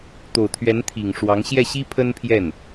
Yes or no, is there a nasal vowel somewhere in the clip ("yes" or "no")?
no